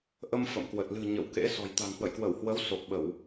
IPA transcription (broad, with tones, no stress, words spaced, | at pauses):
ʔə˧m fə̰˧˨mkwə˨˩t̚ lɨ̤˨˩ ɲə̰˧˨w kḛ˧˥sɔ̤˨˩j t̪a̤˨˩ŋhwə̰˧˨jkwə˧˩whwə˨˦w so˨˩k̚ɓə˧˩˨w